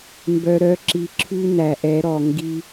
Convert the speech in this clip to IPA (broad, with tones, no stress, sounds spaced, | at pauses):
m b œ˧ ɾ œ˧˥ ǁ i˧ ǁʰ ʉ˥ n æ˧ ʔ ɛ˧˥ ɾ ɔ˧ ŋ ɡ i˥